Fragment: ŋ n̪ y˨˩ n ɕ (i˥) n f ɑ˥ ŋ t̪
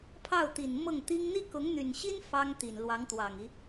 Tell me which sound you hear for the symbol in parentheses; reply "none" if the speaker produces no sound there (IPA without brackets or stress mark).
i˥